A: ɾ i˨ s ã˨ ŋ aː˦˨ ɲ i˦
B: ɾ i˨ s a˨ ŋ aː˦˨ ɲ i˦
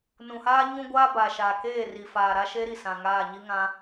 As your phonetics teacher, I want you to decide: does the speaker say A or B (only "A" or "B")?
A